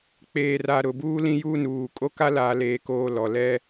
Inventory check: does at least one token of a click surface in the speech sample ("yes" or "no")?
no